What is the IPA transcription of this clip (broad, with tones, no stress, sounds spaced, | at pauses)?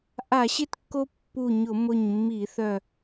ʔ a˧˩˧ ɕ ɪ˥˨ t kː o˦ pː u˧˩ ɲ ʊ˧˩˧ m ʊ˧˩ ɲ mː i˧˩˧ θ œ˧˩